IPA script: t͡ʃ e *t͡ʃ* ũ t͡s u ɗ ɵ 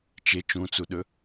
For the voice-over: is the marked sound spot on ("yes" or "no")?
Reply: yes